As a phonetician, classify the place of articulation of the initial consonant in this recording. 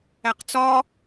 uvular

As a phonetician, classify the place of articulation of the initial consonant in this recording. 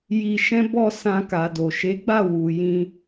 palatal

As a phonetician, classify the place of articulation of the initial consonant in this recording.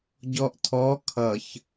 palatal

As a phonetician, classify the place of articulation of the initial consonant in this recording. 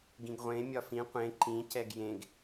velar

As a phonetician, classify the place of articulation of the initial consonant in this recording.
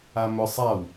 labial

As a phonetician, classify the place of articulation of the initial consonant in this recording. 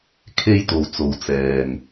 velar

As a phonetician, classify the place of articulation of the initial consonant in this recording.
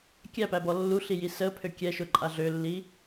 velar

